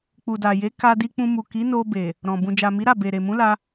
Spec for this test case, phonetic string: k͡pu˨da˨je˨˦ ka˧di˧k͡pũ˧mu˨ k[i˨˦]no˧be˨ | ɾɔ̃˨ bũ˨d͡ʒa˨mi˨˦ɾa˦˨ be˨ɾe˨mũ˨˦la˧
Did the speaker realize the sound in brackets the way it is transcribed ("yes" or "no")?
yes